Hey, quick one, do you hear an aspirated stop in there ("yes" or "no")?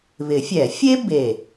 no